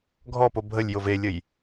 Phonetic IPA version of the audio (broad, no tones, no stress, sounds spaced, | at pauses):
ɡʱ ɔ p o bʱ ə lʲ j o v e lʲ ə j